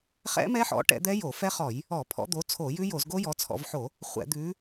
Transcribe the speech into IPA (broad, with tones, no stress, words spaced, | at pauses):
χɛ̰˦˥mɛ˦˥ħɔ̰˨˦ ʈɛ̰˨˦d̪ɛ˦˥ jo˧˩˧fɛ˦˥χɔ˧˩˧j | ɔ˧˩˧pʰɔ̰˨˦d̪o˨˦ t͡sʰo˧˩˧jʉ˦˥jo˧˩˧z ɡo˦˥jɔ˨˦t͡sʰɔ̰˧˩˧vħo˧˩˧ | χʷɛ̰˧˩˧d̪ʉ˨˦